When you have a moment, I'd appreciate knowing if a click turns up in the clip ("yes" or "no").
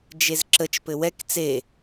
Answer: yes